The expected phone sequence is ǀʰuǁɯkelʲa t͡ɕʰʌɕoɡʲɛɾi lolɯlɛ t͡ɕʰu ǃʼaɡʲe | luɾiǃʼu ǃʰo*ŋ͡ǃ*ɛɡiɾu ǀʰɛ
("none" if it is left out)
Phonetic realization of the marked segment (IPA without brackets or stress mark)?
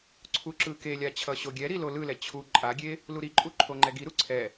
ŋ͡ǃ